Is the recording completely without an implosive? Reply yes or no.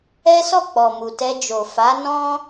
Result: yes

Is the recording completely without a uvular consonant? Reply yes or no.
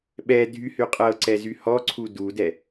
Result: no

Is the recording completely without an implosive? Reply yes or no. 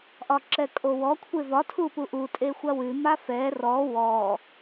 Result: yes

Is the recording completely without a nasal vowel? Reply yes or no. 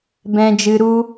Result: no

